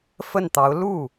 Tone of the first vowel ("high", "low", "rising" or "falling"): falling